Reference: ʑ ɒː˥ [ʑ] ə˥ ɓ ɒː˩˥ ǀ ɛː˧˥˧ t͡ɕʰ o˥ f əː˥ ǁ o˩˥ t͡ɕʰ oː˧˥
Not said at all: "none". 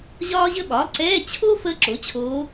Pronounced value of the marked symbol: ʑ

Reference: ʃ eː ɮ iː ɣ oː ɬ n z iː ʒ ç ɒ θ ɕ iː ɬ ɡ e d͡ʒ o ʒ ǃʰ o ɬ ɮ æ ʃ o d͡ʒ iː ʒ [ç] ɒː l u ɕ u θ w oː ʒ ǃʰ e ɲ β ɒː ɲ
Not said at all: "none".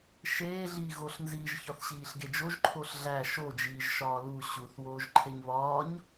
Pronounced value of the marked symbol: ʃ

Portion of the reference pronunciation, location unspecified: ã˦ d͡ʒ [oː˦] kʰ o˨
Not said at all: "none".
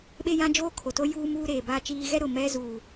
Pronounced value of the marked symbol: oː˦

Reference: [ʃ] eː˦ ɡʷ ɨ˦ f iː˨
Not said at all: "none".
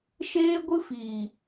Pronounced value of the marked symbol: ʃ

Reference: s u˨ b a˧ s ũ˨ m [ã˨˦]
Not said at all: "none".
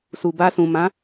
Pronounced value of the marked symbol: ã˨˦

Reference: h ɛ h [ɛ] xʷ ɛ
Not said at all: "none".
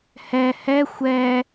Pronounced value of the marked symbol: ɛ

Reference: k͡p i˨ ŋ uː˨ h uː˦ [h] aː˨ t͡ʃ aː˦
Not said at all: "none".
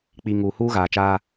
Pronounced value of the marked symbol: ɣ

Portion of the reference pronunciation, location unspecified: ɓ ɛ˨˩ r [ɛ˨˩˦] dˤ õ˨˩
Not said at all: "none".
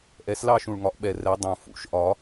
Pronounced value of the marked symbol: ɛ˨˩˦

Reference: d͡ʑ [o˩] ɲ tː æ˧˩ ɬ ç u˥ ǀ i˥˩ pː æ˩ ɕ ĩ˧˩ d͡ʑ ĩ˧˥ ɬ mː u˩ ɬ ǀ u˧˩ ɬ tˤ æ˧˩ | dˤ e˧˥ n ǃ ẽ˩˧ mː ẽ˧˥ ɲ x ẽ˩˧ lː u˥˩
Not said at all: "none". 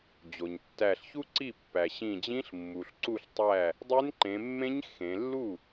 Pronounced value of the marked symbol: o˩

